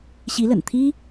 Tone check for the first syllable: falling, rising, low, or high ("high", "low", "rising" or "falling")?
rising